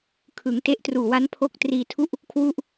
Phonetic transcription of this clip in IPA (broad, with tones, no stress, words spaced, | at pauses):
kʰɯ˩˦ŋ te˦˥ʔtruː˨˩ wa˦˥npʰo˦˥k̚ triː˧tʰu˥˩ʔ | kʰwu˥˩ʔ